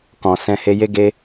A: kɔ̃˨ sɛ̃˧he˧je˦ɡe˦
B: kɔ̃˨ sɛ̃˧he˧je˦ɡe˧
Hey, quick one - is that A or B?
A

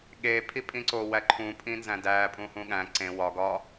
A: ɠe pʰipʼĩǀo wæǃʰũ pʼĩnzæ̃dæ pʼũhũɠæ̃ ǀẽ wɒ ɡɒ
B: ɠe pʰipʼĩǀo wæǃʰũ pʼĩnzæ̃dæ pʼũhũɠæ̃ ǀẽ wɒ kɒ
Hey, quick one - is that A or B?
A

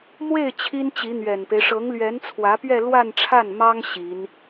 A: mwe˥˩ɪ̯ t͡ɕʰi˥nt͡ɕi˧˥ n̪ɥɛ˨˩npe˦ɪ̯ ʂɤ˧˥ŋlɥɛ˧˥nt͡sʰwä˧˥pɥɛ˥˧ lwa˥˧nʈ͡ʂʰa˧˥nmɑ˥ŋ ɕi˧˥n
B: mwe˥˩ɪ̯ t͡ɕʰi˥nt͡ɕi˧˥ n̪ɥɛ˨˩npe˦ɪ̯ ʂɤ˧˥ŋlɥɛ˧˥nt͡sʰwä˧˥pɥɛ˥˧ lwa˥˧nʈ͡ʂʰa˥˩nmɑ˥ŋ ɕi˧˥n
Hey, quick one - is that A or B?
B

